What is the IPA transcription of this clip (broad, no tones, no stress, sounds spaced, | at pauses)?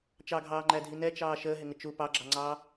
t͡ʃ ɑ ɡʱ ɑː ŋ͡ǃ æ dʱ i n ɛ t͡ʃ ɑː ʃ əː ɦ ɪ ŋ ə t͡ʃ u p ɑ ɡ͡ǁ ɑ ŋ͡ǀ ɑː